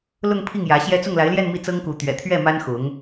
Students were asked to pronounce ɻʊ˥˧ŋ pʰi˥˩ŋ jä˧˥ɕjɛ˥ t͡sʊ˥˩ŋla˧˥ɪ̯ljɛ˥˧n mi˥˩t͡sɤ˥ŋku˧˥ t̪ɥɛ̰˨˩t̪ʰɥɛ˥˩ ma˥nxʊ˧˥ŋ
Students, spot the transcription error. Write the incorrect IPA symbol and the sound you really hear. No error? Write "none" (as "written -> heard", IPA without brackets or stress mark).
ɻ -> l